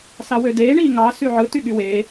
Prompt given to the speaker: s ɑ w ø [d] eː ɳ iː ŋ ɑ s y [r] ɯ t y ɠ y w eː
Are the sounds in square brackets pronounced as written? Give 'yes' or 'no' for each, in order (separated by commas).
yes, no